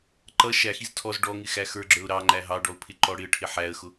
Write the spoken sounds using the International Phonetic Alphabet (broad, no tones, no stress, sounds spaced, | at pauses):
ǃ ʌ ʃ æ x i z tʰ ɔ z ɖ ɔ ŋ ɪ x æ x ə˞ ɡ͡ǁ ə˞ ʊ̯ ɾ ɑ ŋ͡ǃ æ ɦ ɑ ɖ ɔ ʊ̯ pʰ ɪ ǃ ɔ ɽ ɪ ə̯ ʈʰ ɪ ħ æ ə̯ x ʊ